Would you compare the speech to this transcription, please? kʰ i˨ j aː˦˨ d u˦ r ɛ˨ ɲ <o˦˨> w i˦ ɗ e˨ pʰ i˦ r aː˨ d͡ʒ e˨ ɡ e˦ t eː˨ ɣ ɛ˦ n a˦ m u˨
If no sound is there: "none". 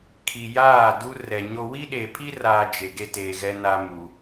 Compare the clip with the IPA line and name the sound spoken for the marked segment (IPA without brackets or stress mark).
o˦